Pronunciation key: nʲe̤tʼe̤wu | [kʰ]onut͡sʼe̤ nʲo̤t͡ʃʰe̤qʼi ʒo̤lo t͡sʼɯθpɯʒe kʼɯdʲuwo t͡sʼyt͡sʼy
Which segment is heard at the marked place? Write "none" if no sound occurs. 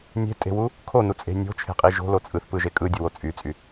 kʰ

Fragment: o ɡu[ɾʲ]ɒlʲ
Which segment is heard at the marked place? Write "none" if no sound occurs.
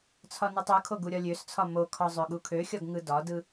ɾʲ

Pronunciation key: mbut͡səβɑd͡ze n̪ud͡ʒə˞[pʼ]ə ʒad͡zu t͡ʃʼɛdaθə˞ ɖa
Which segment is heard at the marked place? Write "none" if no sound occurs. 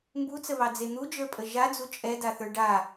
pʼ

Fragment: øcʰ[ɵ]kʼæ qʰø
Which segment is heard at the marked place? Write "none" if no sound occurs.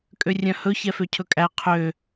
ɵ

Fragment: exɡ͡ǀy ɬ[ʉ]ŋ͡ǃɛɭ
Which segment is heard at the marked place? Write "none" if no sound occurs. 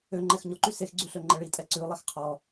ø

